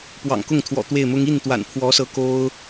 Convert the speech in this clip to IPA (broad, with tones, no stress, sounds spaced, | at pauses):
p w ɑ̰˨˩ ŋ k ʊ˥˩ ŋ t̪ʰ w ɔ̰˨˩ t̪ w e˥˩ ɪ̯ m ʊ˥ ŋ i˥˩ n t̪ w a̰˨˩ n pʰ w ɔ˧˥ s ɤ˧˥ k o˥ ʊ̯